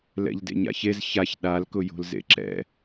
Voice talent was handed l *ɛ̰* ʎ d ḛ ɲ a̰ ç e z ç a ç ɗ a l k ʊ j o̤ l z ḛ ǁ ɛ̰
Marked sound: correct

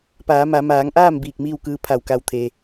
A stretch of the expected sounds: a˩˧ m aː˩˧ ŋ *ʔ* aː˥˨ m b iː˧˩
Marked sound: correct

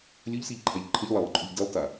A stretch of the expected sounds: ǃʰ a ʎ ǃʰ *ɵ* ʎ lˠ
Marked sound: incorrect: ə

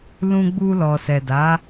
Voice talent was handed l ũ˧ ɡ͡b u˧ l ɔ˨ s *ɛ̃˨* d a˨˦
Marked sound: incorrect: ɛ˨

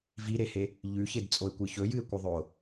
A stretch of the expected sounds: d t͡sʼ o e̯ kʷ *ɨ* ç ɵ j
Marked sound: correct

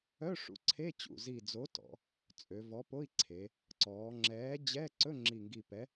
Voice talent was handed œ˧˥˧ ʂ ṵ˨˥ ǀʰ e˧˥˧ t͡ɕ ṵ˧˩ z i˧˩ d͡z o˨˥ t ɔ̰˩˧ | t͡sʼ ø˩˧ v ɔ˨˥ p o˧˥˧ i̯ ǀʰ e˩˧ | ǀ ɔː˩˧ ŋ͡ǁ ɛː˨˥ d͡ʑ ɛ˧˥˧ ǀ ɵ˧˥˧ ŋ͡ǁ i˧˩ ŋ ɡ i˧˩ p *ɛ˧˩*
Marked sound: incorrect: ɛ˨˥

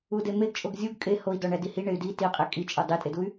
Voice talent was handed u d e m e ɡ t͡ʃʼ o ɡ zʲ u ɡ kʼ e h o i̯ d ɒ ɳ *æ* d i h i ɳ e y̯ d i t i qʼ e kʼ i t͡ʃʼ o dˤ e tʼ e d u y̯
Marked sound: correct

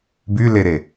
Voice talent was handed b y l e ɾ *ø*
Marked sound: incorrect: e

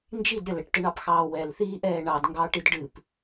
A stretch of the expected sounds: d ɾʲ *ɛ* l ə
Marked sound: incorrect: ə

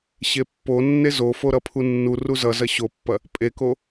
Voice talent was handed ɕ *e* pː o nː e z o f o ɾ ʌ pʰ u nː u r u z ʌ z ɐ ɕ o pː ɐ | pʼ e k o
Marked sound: correct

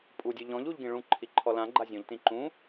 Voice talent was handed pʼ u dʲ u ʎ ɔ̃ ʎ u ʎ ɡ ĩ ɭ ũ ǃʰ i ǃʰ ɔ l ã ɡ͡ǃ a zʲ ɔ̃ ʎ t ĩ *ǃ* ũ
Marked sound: correct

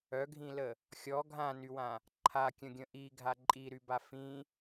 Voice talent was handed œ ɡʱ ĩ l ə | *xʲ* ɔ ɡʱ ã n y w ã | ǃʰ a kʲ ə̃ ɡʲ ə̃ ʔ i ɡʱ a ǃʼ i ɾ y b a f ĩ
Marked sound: correct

